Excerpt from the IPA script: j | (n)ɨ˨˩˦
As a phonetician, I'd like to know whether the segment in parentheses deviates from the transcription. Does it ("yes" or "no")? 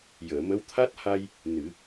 no